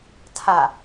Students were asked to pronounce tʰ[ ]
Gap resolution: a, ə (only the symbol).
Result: a